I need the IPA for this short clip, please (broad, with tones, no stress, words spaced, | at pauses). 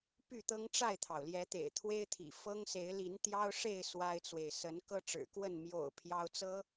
py˥˨t̪ɤ˦ŋʈ͡ʂa˥˨ɪ̯t̪ʰɑ˩ʊ̯ ljɛ˨˦t̪ḛ˨˩ɪ̯t̪ʰwe˦ɪ̯t̪ʰḭ˨˩ fɤ˦ŋse˨˦ɪ̯li˨˦n t̪jɑ˦ʊ̯ʂe˥˨ɪ̯ swa˦ɪ̯t͡swe˨ɪ̯ sə˨˦n kɤ˦ʈ͡ʂɻ̩˨˩kwə˥˨n mjo̰˨˩ʊ̯ pʰjɑ˦ʊ̯t͡sɤ˦